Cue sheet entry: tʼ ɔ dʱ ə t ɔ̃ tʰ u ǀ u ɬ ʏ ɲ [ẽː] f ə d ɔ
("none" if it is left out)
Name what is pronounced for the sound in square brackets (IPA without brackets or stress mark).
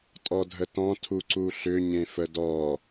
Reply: ẽ